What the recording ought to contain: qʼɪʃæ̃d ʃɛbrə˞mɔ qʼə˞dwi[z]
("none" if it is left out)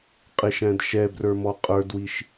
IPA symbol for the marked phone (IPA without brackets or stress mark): ʃ